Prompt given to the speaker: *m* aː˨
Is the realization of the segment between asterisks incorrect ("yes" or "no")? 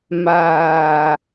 no